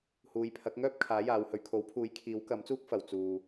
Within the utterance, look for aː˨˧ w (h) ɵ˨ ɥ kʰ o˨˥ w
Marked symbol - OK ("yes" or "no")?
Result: yes